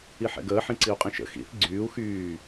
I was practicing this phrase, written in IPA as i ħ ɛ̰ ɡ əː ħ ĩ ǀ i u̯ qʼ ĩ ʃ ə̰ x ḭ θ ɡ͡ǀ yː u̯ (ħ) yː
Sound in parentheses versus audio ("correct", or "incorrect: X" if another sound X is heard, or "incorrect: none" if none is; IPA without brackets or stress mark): incorrect: x